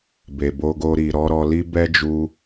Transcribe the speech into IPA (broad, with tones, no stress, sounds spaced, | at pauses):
b e˨ b o˧ ɡ o˧ ɾ i˨ ɾ ɔ˨˦ ɾ ɔ˧ l i˦ b ɛ˦ d͡ʒ u˧